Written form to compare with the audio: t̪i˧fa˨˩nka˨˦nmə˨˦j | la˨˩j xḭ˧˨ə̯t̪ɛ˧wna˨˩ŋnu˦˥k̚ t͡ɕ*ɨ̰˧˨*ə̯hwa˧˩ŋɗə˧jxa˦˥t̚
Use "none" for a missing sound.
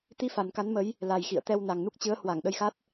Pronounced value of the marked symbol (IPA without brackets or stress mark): ɨ˨˦